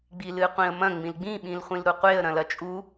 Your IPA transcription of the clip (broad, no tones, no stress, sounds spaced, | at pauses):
ɡ͡b i l ɨ qʷ ĩ ə̯ m ɐ̃ ŋ͡m ĩ l ɡ͡b ĩ ɓ ĩ l χʷ ĩ l ɾ u qʷ e ə̯ ɾ ɐ̃ l ɐ t͡ʃʼ u